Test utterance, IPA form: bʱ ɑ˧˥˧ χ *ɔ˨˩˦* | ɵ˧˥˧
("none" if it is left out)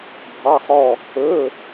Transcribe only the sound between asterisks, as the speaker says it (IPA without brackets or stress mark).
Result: ɔ˥˧